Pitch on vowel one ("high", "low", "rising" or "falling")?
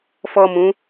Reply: high